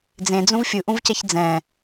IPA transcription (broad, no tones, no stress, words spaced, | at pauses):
d͡zẽd͡zũv fʲɯʔũvcɛç d͡zɛ̃